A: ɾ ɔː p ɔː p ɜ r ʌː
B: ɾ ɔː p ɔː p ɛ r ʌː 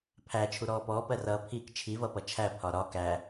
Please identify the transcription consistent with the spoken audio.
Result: A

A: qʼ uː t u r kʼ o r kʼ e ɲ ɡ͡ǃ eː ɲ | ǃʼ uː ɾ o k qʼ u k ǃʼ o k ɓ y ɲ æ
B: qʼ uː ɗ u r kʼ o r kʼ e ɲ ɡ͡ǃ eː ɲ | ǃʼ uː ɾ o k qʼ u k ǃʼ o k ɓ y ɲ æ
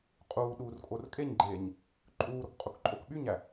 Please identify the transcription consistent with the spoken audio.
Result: B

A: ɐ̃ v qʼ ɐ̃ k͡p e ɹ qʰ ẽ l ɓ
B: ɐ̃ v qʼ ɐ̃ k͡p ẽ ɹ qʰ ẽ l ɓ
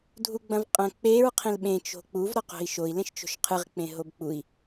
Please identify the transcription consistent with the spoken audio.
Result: A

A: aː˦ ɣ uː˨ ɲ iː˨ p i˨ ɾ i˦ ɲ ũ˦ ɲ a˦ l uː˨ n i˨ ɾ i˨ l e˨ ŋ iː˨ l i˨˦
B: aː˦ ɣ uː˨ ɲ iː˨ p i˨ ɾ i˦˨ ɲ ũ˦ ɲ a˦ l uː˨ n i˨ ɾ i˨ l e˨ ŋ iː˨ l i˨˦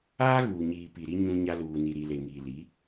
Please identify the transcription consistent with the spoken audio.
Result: A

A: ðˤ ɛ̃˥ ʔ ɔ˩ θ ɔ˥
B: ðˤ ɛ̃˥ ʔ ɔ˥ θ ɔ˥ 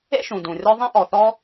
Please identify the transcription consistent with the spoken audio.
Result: A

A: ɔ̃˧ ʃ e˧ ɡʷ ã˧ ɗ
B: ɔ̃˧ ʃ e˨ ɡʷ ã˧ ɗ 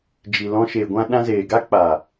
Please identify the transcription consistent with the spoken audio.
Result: B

